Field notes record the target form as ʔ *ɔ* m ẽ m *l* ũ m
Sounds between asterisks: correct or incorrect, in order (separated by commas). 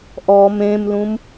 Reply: correct, correct